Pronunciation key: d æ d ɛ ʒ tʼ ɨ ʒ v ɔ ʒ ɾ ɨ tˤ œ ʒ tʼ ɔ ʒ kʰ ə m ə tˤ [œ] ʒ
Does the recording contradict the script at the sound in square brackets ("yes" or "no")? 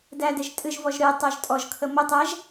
yes